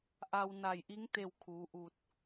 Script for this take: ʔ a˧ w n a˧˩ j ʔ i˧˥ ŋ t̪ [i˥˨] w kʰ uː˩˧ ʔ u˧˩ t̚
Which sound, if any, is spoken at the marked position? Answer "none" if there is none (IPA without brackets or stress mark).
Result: e˥˨